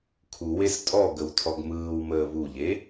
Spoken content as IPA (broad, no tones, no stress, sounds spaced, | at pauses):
kʰ u w e s tʼ ɔ ɡ ə w tʰ ɔ ɡ m ɯː w m əː β u ʎ e